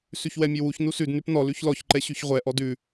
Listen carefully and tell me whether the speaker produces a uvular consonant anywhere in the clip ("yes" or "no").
yes